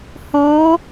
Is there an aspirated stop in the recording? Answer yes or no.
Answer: no